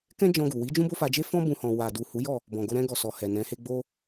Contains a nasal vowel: yes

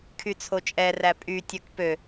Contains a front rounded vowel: yes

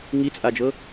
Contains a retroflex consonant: no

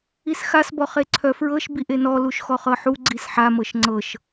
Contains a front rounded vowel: yes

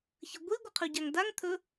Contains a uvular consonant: yes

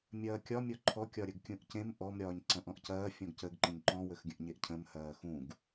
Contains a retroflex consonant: no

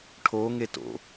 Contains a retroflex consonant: yes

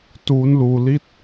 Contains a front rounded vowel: no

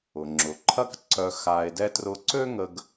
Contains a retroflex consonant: no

